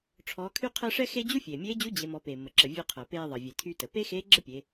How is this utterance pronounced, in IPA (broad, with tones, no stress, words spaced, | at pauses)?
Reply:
ʈ͡ʂʰɔː˩˧kʰy˧qʰəː˧ ʂɛ˥xe˥ d͡ʑu˥fʲeː˩mʲeː˧˥d͡ʑu˧˥ d͡ʑe˩˧mɔ˩˧ peː˩mːə˩ǁə˩ vʲœ˧qʰəː˩ peː˧ðˤə˩ vʲe˩ tʰy˧tə˩ pe˥xeː˧˥ ɡ͡ǁə˥pʲe˩˧